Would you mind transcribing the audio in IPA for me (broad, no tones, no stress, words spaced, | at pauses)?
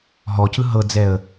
ɦɔcɯ ɦɤd͡zɛə̯